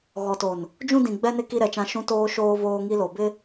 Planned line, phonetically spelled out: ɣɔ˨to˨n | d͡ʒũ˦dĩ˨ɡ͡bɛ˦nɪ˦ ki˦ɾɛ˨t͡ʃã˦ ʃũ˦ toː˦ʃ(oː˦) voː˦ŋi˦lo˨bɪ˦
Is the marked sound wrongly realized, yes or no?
no